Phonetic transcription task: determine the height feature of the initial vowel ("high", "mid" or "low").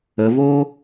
mid